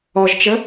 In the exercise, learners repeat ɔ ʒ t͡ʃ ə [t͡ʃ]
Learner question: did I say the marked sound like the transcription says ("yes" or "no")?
no